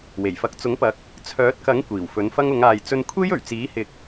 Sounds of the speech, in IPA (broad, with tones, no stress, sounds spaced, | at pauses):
w e˨˩ j f ɐ˨˥ k̚ t͡s ʊ˨˥ ŋ p ɐ˨˥ k̚ | t͡sʰ œː˨˥ t̚ k ɐ˨˥ ŋ kʷ iː˨˩ w f ɵ˨˥ n f ɐ˥ ŋ ʊ˨˧ ŋ aː˨ j t͡s ɵ˧ n kʷʰ e˥ j ɵ˨˩ ɥ t͡s iː˨˥ h ɪ˨ k̚